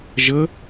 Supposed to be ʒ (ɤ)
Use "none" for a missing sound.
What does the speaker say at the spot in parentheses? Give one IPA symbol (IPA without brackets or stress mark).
ɤ